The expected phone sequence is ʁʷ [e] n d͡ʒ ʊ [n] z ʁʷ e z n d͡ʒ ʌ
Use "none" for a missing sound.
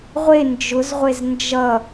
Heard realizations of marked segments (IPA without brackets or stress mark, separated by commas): e, none